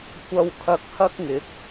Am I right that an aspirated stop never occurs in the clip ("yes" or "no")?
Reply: no